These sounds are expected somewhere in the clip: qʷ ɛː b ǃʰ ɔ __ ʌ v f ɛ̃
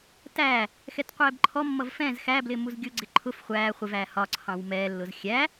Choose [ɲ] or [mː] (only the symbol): mː